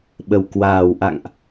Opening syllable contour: low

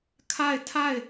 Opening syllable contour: falling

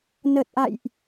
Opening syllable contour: low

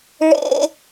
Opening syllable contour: high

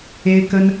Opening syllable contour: high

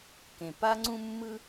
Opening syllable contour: low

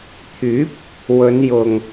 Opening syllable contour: rising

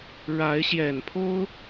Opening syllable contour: rising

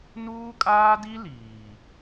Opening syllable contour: high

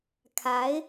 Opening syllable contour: rising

